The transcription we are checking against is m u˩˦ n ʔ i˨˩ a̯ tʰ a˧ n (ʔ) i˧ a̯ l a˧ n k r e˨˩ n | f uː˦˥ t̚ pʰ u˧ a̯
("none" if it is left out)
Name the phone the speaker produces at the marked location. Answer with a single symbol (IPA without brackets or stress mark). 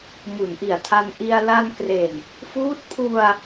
ʔ